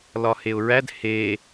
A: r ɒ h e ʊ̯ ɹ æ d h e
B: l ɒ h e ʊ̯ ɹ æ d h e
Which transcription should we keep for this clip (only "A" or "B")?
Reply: B